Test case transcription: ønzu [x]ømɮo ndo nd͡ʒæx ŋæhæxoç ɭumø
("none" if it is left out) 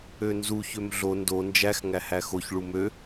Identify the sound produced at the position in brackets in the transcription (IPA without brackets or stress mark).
ç